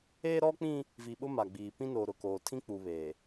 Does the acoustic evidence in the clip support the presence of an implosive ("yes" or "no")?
yes